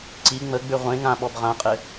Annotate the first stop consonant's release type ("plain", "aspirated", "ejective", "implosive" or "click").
click